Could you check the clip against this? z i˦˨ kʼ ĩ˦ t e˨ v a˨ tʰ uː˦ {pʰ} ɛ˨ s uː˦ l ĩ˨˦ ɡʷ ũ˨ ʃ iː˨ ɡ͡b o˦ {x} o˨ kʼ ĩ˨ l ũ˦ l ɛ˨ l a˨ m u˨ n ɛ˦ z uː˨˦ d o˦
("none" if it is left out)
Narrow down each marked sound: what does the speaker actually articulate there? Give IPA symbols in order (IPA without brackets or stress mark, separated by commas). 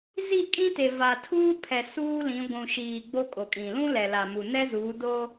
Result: pʰ, kʼ